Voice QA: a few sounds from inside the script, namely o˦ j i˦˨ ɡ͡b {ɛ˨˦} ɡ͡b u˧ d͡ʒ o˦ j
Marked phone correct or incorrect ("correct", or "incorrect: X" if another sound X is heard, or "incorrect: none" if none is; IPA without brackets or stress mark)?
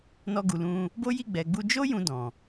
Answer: incorrect: ɛ˨